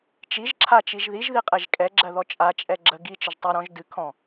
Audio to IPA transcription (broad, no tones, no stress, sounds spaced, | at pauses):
t͡ʃ i ʒ ǁʰ a t͡ʃ i ʒ ð i ʒ ð i qʼ ɛ ʒ kʼ ɛ ɡ͡ǁ ɜ ð ɔ t͡ʃʼ a t͡ʃʼ ɛ ɡ͡ǁ ə ɡ i t͡ʃ ə ʒ tˤ ɘ ɾ ɔ̃ ʒ d ɨ kʰ ɔ̃